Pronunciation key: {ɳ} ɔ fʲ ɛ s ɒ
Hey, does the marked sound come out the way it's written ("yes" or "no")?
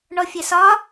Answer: yes